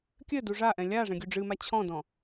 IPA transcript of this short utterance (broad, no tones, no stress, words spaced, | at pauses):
kʲɘ duʐaʔɛ̃ lʲa ʐɛ̃ɡʲuɖ͡ʐɨma t͡ɕʰɔ̃dɔ̃